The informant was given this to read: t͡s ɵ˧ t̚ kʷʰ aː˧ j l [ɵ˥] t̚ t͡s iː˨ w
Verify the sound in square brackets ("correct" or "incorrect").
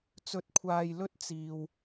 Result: correct